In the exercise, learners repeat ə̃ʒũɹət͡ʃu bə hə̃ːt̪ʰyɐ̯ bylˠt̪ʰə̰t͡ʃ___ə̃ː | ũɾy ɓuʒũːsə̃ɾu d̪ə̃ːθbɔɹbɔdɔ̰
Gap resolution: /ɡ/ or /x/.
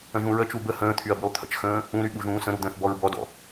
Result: x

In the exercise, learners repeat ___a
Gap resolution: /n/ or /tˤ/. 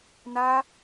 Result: n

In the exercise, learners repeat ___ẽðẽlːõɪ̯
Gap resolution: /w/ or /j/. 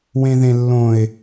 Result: w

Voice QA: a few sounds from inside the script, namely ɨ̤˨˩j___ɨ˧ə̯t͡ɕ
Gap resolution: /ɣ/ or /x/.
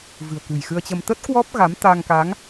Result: x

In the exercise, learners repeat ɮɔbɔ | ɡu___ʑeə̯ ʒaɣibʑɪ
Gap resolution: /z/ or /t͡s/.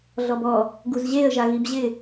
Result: z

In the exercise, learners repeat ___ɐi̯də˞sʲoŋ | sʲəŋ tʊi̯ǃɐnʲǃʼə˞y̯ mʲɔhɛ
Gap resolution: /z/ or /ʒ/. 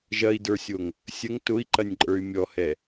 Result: ʒ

